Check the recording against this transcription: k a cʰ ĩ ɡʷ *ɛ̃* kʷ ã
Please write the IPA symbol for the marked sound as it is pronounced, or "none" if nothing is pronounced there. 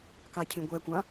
ɛ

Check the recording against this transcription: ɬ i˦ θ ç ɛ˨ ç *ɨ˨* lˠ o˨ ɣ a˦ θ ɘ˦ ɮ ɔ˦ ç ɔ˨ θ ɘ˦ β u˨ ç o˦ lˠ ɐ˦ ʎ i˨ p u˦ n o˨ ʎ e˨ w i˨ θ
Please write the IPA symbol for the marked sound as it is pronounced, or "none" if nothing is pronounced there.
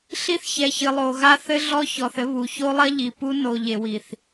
ɨ˨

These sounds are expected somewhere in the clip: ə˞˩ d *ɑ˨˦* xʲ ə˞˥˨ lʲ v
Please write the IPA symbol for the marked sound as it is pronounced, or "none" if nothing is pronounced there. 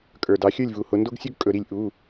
ɑ˨˦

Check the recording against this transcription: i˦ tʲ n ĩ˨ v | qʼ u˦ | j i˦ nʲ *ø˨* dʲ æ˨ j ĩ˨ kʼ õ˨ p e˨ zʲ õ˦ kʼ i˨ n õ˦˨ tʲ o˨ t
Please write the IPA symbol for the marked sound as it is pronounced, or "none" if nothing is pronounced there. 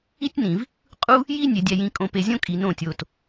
e˨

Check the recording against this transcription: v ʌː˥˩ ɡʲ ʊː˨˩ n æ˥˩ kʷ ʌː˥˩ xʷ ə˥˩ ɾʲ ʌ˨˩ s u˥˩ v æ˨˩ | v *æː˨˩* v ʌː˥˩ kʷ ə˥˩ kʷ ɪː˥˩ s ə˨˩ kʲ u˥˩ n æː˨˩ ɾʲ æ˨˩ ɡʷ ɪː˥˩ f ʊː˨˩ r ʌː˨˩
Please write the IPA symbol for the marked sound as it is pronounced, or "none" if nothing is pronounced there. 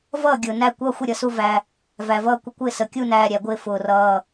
æ˨˩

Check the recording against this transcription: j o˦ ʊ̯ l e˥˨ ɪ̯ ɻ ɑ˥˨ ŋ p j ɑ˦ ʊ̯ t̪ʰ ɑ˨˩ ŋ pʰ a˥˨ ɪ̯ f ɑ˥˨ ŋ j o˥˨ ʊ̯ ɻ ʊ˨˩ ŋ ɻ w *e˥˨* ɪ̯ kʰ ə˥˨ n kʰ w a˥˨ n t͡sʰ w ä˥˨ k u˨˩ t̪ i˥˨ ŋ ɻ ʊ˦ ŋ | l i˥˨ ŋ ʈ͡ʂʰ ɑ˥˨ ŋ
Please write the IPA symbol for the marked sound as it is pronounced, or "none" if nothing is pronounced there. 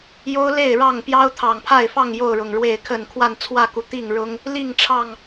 e˥˨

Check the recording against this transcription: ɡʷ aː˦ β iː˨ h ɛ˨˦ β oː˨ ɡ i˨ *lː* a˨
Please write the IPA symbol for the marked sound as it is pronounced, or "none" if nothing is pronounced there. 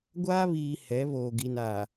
n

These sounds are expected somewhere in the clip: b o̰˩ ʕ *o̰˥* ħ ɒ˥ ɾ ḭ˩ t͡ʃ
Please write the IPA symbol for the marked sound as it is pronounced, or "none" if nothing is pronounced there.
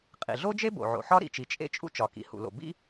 o̰˩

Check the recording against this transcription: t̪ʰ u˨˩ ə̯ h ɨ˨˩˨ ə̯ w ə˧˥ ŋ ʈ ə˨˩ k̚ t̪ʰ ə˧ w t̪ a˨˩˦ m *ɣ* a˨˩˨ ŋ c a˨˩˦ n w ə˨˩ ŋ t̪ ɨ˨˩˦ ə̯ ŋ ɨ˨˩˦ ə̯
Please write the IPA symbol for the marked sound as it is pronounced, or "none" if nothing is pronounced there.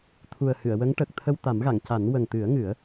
ɣ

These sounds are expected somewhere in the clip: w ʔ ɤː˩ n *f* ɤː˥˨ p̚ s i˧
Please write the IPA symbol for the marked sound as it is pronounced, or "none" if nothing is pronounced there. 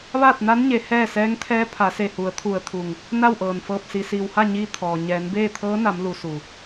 f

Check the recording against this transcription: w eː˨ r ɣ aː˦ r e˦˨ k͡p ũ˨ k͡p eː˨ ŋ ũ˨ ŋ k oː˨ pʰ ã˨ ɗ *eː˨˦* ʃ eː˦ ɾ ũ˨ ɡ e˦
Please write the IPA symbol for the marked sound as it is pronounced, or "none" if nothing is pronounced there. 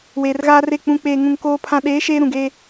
eː˨˦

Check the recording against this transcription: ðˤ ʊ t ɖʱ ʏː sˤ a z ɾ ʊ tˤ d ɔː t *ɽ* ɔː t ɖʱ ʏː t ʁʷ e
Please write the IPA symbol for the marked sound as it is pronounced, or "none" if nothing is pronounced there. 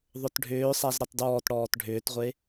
ɽ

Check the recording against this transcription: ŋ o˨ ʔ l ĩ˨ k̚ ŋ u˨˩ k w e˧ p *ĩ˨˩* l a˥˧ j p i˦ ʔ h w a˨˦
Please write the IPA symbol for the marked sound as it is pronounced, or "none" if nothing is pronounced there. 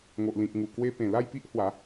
ẽ˨˩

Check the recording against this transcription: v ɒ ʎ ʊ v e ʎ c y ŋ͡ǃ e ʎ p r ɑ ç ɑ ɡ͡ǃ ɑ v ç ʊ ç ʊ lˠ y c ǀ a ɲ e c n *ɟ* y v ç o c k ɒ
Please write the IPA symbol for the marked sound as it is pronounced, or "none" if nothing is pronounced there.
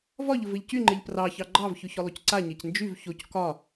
d͡ʒ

